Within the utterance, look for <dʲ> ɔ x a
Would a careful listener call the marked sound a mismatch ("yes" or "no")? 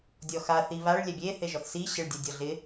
no